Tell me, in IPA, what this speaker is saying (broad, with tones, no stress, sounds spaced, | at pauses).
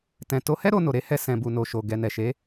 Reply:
t ɛ̃˨ t o˨˦ h ɛ˦ ɾ o˧ n o˨ ɾ e˨˦ h ɛ˧ s ɛ̃˨ b u˨ n o˨ ʃ o˨ ɡ ɛ˨ n ɛ˨ ʃ e˨˦